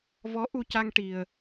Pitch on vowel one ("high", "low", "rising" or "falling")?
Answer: rising